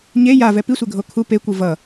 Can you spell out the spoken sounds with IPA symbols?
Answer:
ɲ e j a v ɛ p i sʷ e ɡʱ o kʰ u p e kʷ ɯ v ʌ

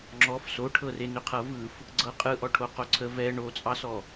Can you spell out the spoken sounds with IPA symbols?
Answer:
ŋ͡ǁ ɔ f s o ʈʰ ɤ r e n ʏ qʰ ɤ v ɯ f | ɡ͡ǀ ɤ qʼ ɯ ʔ ɔ ʈʰ o q o ǀʰ ə v ɛ ɳ o t͡sʼ ɑ s ɔ

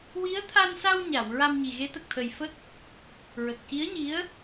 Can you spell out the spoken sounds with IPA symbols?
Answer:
w i˧˥ ə̯ t̪ʰ a˧ n s a˧ w ɲ a˨˩˨ w ɹ a˧ m ɲ i˨˩ ɣ e˧˥ t̪ ə˨˩ k̚ t̪ʰ ə˨˩ j f ə˦˥ k̚ | ɹ ə˨˩ k̚ c i˧˥ ə̯ ɲ i˧˥ ə̯

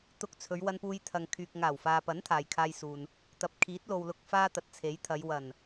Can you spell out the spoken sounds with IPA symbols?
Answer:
t̪ ʊ˧ k̚ t͡sʰ ɵ˨˧ ɥ w ɐ˧ n p uː˧ j t̪ʰ ɐ˨ ŋ kʰ yː˨ k̚ ŋ aː˨˩ w f aː˨ p ɐ˨˥ n t̪ʰ aː˨ j kʰ aː˧ j s uː˨ n | t̪ ɐ˨ p̚ kʰ iː˨˥ t̚ l o˨ w l ʊ˧ k̚ f aː˥ t̪ ɐ˨˥ t̚ t͡sʰ e˨˥ j t̪ʰ ɐ˨˧ j w ɐ˨˩ n

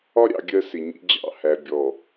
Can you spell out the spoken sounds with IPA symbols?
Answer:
ɒ˦ ɾʲ ɑ̰˨ ɡʲ ɜ˦ s ɪ˨ ɲ ḭ˦ d͡ʑ ɑ̰˦˨ h æ˨ bʲ ɔ˨

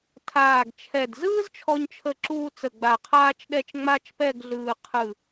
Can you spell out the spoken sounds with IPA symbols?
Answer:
tʰ aː˧˩ ɡ t͡ʃʰ ɛ˧˩ d z ɯː˥ z t͡ʃʰ ɔ˧ ɲ t͡ʃʰ ə˧˩ ǁ uː˧ t͡s ə˧˩ ɡ͡b a˧˩ qʰ aː˥ t͡ʃ ɗ ɛ˥˧ t͡ʃ ŋ͡m a˥ t͡ʃ p ɛ˥˧ ɡ ɮ ɯː˧ qʰ ɯ˧˩

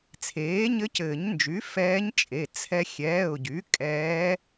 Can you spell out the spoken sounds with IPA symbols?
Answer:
t͡sʰ eː˩˥ ɲ ɘ˧˥ c ɘː˨˩˦ ɲ n d͡ʒ y˩˥ f ɛː˧˥ ɲ t͡ʃʼ e˩˧˩ t͡sʰ ɛ˧ xʲ ɛː˩˧˩ ʊ̯ ɟ y˩˥ kʼ ɛː˧˥

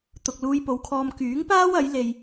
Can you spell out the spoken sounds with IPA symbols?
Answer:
t̪ ʊ˨ k̚ l uː˧ j p o˨˧ w kʰ ɔː˧ m k yː˨˥ ŋ p aː˥ w ɐ˨˥ j l e˧ j

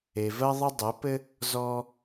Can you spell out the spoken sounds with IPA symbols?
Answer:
e˩ v ɜ˧ ðˤ ɘ˧ dˤ ɘ˩˧ p ɘ˧ | z ɔ˧

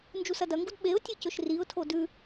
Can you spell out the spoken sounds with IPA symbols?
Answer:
n d͡ʒ u s ɐ d ɐ ŋ ɡ u d ɓ e ʊ̯ tʲ ɨ c ɵ ʃ r i ʊ̯ tʰ o d ʉ

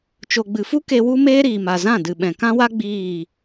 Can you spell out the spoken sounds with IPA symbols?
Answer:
t͡ʃ o˨ ɡ͡b ɨ˨ f u˦ k e˧ w u˦ m eː˦ ɾ iː˨ m a˨ z ã˦˨ d ɨ˨ ɓ ɛ̃˨ k ã˦ w a˦ ɡ͡b iː˦˨

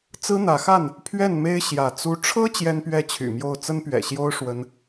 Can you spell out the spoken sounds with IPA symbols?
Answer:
t͡s ɹ̩˦ n̪ ä˨˦ x a˥˨ n | pʰ ɥ ɛ˥˨ n m e˦ ɪ̯ ɕ j ä˨˦ t͡s u˦ ʈ͡ʂʰ ɤ˦ t͡ɕ j ɛ˦ n p ɥ ɛ˥˨ t͡ɕʰ y̰˨˩ m j o˥˨ ʊ̯ t͡s ə˦ n p ɥ ɛ̰˨˩ ɕ j o˦ ʊ̯ ʂ w ə˦ n

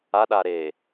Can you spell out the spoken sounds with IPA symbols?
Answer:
a ɗ a ɾ e

